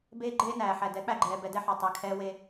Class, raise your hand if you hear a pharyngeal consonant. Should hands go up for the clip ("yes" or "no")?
yes